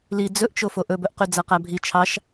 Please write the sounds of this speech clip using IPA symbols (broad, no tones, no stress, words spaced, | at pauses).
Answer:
li d͡zɵʔt͡ʃo foʔɵbɵʔ qyd͡zæqæbʱi t͡ʃʰɑʃ